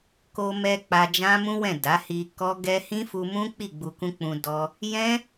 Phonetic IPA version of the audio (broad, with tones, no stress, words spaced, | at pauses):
ko˧mɛ˧ k͡pa˧d͡ʒã˦mũ˦wɛ̃˦˨ da˨˦hi˧ kɔ˦ɡɛ˦ hĩ˦fu˧mũ˦k͡pi˦˨ ɡ͡bu˧kũ˦k͡pũ˧ dɔ˧ | jɛ̃˦